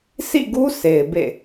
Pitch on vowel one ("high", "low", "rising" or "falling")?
falling